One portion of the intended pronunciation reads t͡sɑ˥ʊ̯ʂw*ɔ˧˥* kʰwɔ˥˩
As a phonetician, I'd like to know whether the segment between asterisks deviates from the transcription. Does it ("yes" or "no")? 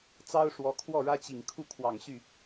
no